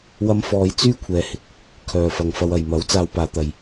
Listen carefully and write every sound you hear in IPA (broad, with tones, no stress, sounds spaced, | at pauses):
w ɐ˧ m f ɔː˨˧ j t͡s yː˥ kʷʰ ɛː˨˧ h ɪ˧ k̚ | kʰ œː˨ f ɐ˨ ŋ f ɐ˧ w ɐ˨ j m ɐ˨˥ w t͡s aː˧ w p aː˨˧ t̪ ɐ˨ j